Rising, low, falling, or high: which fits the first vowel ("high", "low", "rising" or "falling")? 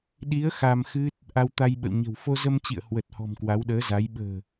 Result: rising